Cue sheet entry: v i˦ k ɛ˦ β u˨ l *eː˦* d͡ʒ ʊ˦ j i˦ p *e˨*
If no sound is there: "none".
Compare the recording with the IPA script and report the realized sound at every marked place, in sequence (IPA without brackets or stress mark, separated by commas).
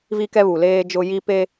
eː˦, e˦